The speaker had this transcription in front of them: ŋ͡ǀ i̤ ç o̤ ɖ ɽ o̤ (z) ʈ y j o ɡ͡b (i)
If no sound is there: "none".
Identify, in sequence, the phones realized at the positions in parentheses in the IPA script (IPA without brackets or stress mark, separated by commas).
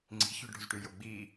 z, iː